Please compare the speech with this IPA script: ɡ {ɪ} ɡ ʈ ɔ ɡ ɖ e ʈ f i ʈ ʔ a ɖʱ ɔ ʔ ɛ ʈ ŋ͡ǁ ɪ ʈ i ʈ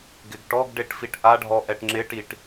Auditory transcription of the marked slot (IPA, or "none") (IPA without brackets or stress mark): ɪ